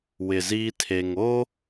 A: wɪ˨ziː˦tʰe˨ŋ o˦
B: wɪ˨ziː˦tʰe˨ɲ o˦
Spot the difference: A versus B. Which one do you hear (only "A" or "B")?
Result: A